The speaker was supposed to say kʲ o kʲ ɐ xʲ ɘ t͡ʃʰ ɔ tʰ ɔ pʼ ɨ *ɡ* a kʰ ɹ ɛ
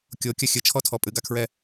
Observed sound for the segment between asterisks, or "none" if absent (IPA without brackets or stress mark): ɡ